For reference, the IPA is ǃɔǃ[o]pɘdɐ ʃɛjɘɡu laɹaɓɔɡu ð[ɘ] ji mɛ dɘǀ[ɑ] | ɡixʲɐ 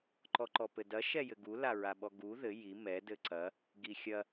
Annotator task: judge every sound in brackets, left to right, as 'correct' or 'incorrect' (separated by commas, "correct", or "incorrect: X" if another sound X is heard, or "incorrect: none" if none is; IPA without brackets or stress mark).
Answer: incorrect: ɔ, correct, incorrect: ɐ